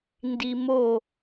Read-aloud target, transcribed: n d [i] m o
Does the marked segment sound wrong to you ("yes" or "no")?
no